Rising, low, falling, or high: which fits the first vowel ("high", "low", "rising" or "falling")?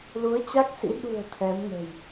rising